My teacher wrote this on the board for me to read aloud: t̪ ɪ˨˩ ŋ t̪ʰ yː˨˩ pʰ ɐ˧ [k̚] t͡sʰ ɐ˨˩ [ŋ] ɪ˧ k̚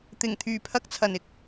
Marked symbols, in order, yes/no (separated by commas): yes, no